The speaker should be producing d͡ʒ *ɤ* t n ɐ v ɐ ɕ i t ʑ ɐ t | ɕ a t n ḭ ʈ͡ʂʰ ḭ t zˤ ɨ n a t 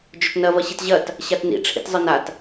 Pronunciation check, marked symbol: incorrect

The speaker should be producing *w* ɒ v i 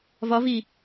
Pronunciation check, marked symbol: incorrect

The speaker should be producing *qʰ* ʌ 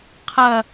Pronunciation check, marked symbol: correct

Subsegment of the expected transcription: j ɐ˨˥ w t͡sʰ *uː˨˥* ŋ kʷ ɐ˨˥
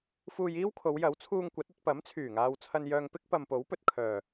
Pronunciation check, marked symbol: incorrect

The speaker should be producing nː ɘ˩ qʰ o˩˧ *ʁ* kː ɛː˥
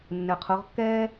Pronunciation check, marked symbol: correct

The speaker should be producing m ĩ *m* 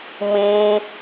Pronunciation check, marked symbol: incorrect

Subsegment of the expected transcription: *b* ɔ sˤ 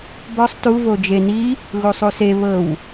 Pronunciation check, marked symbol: correct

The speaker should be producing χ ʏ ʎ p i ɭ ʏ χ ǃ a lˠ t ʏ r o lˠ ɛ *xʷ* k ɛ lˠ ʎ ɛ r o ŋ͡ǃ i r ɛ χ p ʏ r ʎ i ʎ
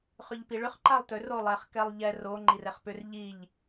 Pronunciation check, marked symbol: incorrect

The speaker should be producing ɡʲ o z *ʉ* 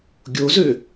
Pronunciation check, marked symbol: incorrect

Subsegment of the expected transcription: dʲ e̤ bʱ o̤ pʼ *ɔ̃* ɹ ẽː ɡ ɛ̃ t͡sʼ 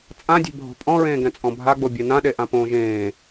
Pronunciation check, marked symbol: correct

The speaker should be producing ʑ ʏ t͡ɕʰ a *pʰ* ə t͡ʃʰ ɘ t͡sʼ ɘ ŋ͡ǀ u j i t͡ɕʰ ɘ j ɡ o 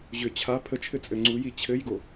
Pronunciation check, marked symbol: correct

